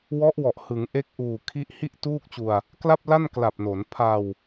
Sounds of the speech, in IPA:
w ɔ˦˥ ʔ w ɔ˨˩ ʔ h ɯ˩˦ ŋ ʔ e˦˥ k̚ ʔ uː˨˩ kʰ i˦˥ ʔ h i˥˩ ʔ t uː˥˩ k̚ t͡ɕ u˧ a̯ | k l a˥˩ p̚ l a˥˩ n k l a˨˩ p̚ n o˩˦ n pʰ a˧ w

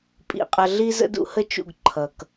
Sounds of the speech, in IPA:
pʼ ḭ˨ qʼ ʌ˨ ɮ i˦ z ə̰˦ d ṵ˦ h ə˦ t͡ʃ ṵ˦˨ ɡ ǃʰ ʌ˨ k

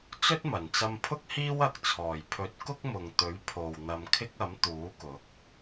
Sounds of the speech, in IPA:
t͡s ɵ˥ t̚ m ɐ˨˩ n t͡s ɐ˧ m pʰ ʊ˥ k̚ h iː˥ w ɐ˨ k̚ t͡sʰ ɔː˨˩ j pʰ ɵ˨˥ t̚ k ʊ˥ k̚ m ʊ˨ ŋ t̪ ɵ˨˥ ɥ pʰ o˨ w n̪ ɐ˧ m kʰ ɪ˥ k̚ ɐ˨˥ m t̪ uː˨˥ k ʊ˨˥ k̚

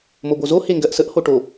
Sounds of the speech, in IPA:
m o b o z o h e ŋ ɡ ɜ ʔ s ə ʔ h o ʈ o

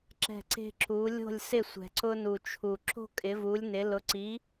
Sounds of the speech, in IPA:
ǁ ɛ̤˥˩ ǀ e̤˥ ǁ u˩˥ lʲ o̤˥˩ lʲ s ɪ˥˩ sʷ ɛ̤˩ ǀ ʊ˧ n u˩ t͡ʃʰ u˩ ǁ o̤˥ kʼ ɪ˩˥ v u˩˥ lʲ n ɪ˩˥ l ʊ˩˥ ǀ i˩˥

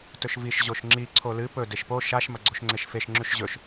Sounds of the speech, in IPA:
t ɵ ʃ v i ʃ ʑ o ʃ ŋ͡ǁ i ǀʰ o l ɨ p ɵ d e ʃ p o ʃ a ʃ m ɐ ɡ͡ǀ o ʃ ŋ͡ǀ e ʃ f e ʃ ŋ͡ǁ ʉ ʃ ʑ ɵ ʃ

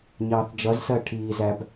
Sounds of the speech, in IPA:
ɲ ɑː θ d͡ʒ ʌ z s ɜ ʈʰ iː z æ b

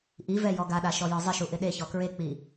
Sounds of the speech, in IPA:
ʔ i v ɛ j ɔ ɡ a ɗ a ʃ ɔ j ɔ zˤ ɪ ʃ u ʔ ɪ ɗ e ç ɔ k ɹ e k͡p i

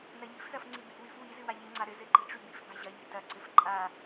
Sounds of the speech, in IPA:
n ɐ ʎ i̤ f z ɐ f ŋ͡ǀ i b i̤ w y f w i z ɨ w a ʎ i ŋ͡ǀ a ɾ ɘ z ɘ ǃ i̤ ʈ͡ʂ y b i̤ f b a̤ ʑ ɐ ʎ i̤ t ɐ ǀ ɘ f ǃʼ a

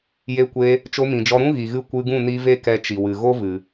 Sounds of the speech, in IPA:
j e˧ kʷ e˧ | t͡ʃ o˧ m ĩ˨ d͡ʒ ɔ˧ ɾ ũ˦ ɣ i˨ ɣ ɨ˦˨ kʷ ɨ˧ ɡ ũ˦˨ n i˧ v e˦ k ɛ˧ t͡ʃ i˨ w ɨ˨ ɣ o˦ v ɨ˨

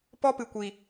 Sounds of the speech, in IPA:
p ɔ˦ p ɨ˨ kʷ i˨

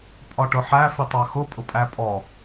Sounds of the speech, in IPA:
pʼ ɒ ʈ ʊ ħ æ f i tˤ ɑ x ʊ pʼ ʊ pʼ æ pʼ ɔ

